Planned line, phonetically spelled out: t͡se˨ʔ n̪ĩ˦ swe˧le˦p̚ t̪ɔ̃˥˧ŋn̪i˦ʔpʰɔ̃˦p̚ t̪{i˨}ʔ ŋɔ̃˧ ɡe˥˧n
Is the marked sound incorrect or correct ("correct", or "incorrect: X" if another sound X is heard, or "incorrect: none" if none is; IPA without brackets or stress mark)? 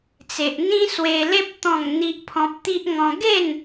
incorrect: i˦